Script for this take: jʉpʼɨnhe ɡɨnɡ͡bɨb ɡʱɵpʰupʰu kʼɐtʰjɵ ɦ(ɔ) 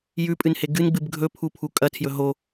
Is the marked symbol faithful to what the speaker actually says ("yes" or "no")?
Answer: no